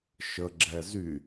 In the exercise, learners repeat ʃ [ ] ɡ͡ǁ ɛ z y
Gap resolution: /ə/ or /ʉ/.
ə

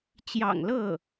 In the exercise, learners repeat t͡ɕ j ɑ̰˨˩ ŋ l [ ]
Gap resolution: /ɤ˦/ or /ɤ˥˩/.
ɤ˥˩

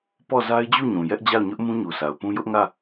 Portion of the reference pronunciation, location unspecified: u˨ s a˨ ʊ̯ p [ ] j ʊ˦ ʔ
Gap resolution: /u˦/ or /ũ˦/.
ũ˦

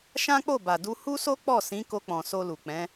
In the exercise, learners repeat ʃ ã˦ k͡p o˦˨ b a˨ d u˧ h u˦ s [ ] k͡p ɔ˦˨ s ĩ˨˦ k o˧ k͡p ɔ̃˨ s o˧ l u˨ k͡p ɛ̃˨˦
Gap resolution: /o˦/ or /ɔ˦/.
o˦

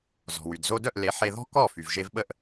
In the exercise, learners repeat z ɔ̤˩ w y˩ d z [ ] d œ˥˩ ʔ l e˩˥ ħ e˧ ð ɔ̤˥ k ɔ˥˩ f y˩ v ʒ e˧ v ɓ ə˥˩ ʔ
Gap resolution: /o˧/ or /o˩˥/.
o˧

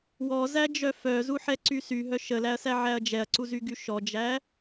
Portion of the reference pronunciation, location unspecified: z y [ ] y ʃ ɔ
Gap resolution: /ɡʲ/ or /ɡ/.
ɡ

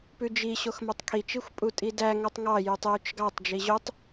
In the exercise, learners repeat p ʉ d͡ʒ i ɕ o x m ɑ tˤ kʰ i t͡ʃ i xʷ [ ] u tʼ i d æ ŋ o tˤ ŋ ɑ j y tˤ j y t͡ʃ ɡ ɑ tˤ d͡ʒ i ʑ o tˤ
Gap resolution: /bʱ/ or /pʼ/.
pʼ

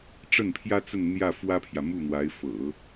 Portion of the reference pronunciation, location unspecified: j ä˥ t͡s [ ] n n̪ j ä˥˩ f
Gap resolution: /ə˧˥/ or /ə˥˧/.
ə˥˧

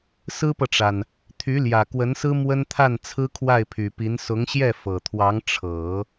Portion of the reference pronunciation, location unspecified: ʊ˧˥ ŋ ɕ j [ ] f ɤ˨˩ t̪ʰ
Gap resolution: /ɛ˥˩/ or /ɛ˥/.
ɛ˥˩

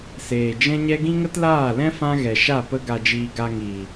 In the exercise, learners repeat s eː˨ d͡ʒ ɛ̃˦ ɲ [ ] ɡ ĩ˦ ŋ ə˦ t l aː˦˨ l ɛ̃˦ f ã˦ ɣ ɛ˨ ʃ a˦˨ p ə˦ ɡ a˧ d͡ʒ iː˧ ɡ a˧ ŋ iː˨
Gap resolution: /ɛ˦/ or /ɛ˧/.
ɛ˦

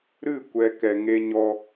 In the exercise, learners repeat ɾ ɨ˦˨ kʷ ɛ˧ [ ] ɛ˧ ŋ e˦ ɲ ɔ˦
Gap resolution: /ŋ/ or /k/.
k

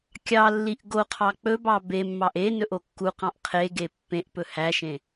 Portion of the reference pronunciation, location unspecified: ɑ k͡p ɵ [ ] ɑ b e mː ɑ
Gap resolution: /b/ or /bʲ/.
b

